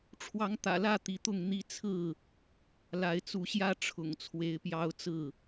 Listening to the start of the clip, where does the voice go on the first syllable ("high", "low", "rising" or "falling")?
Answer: rising